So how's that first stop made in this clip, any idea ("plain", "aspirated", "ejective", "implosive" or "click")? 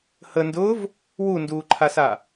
plain